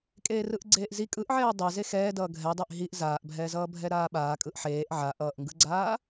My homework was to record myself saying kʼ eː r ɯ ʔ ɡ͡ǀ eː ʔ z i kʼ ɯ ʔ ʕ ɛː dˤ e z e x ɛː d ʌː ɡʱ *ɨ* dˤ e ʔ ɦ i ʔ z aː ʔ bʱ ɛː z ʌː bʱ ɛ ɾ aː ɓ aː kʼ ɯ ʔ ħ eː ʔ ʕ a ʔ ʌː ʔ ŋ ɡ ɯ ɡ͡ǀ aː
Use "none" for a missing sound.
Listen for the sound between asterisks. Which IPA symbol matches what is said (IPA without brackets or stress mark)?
ɛ